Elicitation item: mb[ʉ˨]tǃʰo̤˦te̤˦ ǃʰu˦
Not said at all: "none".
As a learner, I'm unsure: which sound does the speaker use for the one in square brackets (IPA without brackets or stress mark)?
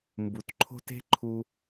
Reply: u˨